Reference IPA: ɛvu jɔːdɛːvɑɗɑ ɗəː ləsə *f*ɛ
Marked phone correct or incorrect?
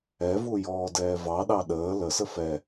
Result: correct